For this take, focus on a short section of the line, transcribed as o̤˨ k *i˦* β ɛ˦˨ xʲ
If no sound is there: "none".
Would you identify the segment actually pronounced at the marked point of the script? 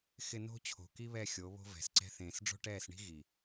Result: i˦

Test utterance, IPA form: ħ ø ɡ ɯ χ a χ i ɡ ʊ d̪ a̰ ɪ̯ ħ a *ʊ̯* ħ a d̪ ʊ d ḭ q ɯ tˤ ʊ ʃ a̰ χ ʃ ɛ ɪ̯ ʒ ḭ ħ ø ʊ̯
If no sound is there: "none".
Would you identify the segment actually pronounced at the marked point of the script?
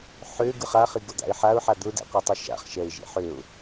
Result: ʊ̯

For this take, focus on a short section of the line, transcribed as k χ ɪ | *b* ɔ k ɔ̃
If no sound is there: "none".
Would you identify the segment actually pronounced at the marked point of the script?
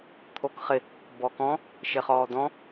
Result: b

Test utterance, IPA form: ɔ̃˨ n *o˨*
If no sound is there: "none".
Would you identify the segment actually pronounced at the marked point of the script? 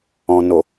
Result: o˨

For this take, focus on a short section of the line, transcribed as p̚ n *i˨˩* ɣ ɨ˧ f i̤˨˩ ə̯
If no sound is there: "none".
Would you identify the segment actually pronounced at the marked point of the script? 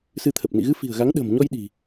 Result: ḭ˧˨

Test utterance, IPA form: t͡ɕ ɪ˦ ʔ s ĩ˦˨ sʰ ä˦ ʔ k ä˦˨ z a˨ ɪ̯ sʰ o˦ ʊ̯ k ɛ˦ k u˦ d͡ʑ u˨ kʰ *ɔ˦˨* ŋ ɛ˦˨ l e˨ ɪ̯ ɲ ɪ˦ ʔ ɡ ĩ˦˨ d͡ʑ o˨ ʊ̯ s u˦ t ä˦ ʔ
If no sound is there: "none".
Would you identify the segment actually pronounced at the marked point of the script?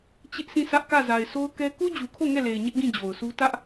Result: o˦˨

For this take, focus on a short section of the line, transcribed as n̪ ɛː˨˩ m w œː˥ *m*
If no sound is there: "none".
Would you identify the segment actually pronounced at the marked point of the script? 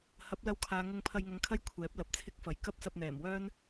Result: n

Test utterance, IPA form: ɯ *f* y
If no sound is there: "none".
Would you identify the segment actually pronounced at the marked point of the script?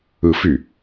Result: f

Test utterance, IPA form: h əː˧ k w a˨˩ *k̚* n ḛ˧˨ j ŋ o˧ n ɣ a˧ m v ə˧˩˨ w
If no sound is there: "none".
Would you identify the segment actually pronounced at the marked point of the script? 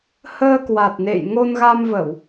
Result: t̚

